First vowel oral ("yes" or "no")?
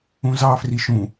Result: no